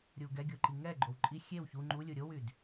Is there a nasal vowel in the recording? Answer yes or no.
no